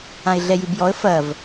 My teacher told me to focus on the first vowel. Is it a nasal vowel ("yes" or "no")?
yes